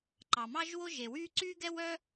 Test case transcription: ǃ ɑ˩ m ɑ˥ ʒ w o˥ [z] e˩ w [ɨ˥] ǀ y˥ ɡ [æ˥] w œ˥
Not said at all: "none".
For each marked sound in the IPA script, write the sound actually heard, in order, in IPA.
ʒ, y˥, ɛ˥

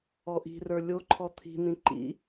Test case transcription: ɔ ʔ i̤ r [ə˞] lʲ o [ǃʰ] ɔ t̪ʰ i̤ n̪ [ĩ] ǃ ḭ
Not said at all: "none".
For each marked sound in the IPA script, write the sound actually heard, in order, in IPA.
ə˞, ǃʰ, ĩ

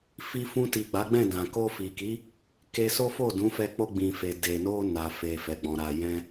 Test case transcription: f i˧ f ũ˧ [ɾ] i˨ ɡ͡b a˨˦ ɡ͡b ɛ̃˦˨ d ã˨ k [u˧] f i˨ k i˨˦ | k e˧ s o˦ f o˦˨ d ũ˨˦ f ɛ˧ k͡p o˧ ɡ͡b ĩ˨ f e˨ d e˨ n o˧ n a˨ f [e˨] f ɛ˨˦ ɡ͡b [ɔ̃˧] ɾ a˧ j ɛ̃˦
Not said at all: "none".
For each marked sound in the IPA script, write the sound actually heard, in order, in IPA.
t, o˧, e˨, ɔ̃˧

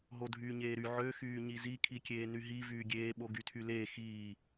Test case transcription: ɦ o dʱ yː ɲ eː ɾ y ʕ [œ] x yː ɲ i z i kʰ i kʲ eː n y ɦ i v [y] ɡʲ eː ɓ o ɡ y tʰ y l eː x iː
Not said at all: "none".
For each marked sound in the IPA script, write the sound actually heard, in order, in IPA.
ø, yː

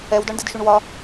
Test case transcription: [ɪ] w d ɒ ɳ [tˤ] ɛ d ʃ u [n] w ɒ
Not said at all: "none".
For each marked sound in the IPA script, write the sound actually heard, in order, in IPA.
ɛ, d, ɳ

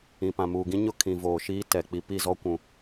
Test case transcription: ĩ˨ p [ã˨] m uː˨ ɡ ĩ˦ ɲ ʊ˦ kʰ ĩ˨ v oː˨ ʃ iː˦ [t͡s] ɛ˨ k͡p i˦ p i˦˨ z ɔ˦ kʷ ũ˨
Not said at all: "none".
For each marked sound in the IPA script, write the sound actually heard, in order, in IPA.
ã˨, t

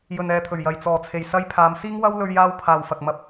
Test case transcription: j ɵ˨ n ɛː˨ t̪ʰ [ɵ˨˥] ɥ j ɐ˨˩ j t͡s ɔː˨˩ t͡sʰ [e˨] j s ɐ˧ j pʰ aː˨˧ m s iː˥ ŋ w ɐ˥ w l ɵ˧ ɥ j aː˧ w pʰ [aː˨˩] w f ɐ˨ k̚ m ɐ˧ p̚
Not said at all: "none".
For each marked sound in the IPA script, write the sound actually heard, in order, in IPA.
ɵ˨˩, e˨˩, aː˨

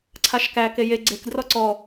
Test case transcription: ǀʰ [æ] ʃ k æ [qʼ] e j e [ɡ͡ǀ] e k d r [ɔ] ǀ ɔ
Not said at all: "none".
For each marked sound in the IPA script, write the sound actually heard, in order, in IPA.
a, k, ɡ͡ǀ, ɔ

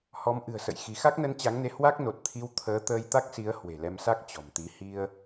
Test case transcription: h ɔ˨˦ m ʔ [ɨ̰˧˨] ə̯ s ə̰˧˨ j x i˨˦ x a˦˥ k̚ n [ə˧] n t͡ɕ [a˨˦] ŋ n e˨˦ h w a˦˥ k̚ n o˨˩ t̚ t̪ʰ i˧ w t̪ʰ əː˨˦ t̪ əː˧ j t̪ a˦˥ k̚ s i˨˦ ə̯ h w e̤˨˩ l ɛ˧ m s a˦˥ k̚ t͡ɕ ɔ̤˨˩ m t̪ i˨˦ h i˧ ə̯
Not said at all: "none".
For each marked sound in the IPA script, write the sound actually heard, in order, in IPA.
ɨ̤˨˩, ə˧, a˨˦

